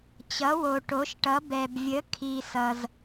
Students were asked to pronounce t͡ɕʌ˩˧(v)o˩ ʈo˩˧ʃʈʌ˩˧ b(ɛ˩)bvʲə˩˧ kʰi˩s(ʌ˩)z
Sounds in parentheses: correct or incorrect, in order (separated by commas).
incorrect, correct, correct